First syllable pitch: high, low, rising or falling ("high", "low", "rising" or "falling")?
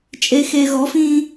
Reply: low